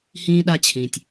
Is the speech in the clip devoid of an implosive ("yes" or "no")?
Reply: no